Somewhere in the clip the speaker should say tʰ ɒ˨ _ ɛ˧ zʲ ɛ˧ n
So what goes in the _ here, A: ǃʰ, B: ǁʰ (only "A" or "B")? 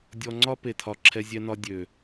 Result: B